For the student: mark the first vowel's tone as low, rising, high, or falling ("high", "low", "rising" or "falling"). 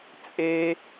high